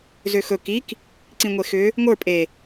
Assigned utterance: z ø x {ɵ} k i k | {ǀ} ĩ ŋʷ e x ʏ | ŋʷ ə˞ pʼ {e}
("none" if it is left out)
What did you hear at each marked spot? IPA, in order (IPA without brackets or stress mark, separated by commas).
ɵ, ǀ, e